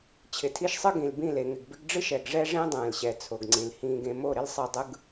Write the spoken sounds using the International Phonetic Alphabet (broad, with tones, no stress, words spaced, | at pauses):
t͡ɕʰɪ˨tʰi˦ʃsˤɯ˦ɡĩ˨l bĩ˦˨le˨ŋɪ˨ɡ bɪ˦ɡɖ͡ʐɨ˦ʃ ɛ˨ɡʐɛ˦ʐẽ˦ dˤɛ̃ː˨lɕɛ˨ t͡sʰo˨ɡŋ͡ǀĩ˨lhĩː˦ɡẽ˦ mo˦˨ɾɪ˦lsˤɨ˨dˤɯ˨ɡ